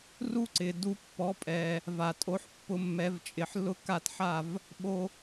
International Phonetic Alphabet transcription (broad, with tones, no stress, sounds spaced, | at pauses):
r u˥ ǀ ɪ˩ d u˧ pː ɔ˩˥ pʼ ɛ˩ | v a˩ tʼ o˩˥ ħ pː ʊ˩˥ mː ɛ˩˥ v t͡ʃʼ ɪ˩ ħ l ʊ˥ k a˥˩ t ħ a˥˩ v | ɓ o˧